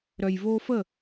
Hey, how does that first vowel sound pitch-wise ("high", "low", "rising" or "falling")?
low